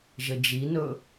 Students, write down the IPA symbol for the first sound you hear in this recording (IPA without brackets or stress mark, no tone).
ʒ